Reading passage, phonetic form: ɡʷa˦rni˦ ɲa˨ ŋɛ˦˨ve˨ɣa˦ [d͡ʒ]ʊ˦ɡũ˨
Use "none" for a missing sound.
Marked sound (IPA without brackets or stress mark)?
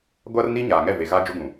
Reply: d͡ʒ